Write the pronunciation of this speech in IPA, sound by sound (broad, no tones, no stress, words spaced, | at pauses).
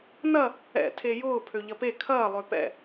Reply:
nɐ | ɛ̰ tʰejʊː pʰøʎɐpe kʰɐː lˠøpɛ̰